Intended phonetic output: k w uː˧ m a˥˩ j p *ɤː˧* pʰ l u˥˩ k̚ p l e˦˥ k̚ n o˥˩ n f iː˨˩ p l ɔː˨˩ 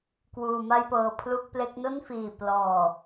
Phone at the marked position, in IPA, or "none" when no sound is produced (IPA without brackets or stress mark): ɤː˧